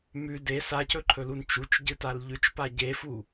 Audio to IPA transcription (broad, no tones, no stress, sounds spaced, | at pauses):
m ʉ d e s a c ɵ ǃʰ ɵ l u n t͡ʃ u t͡ʃ ɟ ɨ t a l ʎ ʉ t͡ʃ p a ɟ e f u